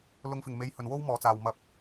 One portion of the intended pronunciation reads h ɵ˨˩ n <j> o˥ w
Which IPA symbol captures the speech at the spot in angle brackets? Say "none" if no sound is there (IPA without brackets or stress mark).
w